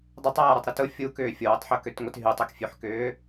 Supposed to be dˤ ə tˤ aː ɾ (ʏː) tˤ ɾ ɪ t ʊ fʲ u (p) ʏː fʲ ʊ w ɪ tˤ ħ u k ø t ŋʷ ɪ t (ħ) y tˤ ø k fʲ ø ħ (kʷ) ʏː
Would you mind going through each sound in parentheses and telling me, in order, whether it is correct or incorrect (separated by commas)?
incorrect, incorrect, incorrect, incorrect